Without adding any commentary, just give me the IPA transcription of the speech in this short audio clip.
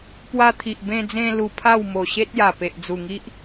p w a˧ t̪ʰ i˨ ʔ b ẽ˧ d͡z ẽ˧ l u˧ pʰ a˥˧ w m o˨˩ ɕ e˦ t̚ j a˨˩ p e˨ ʔ d͡z u˨˩ ŋ i˦ ʔ

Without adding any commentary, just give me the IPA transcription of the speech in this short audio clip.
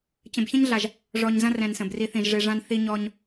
t͡ɕ ə̃˨ b ç ɐ̃˦ ɲ ɮ a˨ ʒ | ʐ ɔ˨ ɲ z ɐ̃˦ r ɛ̃˨ n s ə̃˨ b r i˧ θ ĩ˨ ʒ ʐ e˧ ʐ ã˦ n θ i˦ ɲ ɔ˦ ɲ

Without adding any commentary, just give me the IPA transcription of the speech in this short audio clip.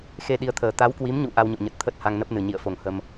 x e˧ ɗ i˨˦ ə̯ t̪ʰ əː˨˩ t̪ a˨˦ w k w i˨˦ m ɲ ṵ˧˨ ʔ a˧ w ɲ o̰˧˨ ɲ ə˨˩ t̚ t̪ʰ ə˦˥ t̚ h a˧ ŋ n ə˦˥ p̚ n ɨ˨˩ ɲ ḭ˧˨ ə̯ f o˧˩ ŋ h ə˧ m

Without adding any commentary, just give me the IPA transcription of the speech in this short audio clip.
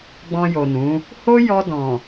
ɡ͡b ɔ̃˧ j o˨ n ũ˨˦ | h o˦ j ɔ˧ d ɔ̃˨

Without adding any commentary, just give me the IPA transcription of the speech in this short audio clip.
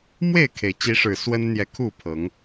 m w e˥˨ ɪ̯ kʰ e˩ ɪ̯ t͡ɕ i˨˦ ʂ ɻ̩˨˩ s w ə˦ n n̪ j ɛ˨ kʰ u˥˨ pʰ ɤ˨˦ ŋ

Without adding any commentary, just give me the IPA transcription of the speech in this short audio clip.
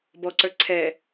b ɔ ǀ ə˞ ǀʰ ɛ

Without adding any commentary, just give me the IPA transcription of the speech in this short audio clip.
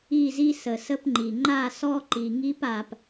i˦˨ z i˦ s ə˨ s ə˦ p ŋ͡ǃ i˨ ŋ͡ǃ a˦˨ s ɔ˦ ǃ i˨ ŋ i˦ p a˨ p

